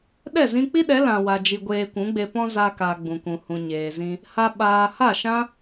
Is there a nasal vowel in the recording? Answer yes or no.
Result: yes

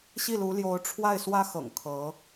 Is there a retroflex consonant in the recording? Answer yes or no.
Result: yes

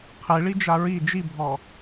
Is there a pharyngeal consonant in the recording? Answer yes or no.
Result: no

